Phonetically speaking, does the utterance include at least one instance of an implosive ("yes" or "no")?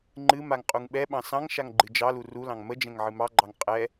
yes